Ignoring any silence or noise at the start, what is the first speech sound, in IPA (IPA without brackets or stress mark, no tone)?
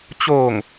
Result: t͡ɕ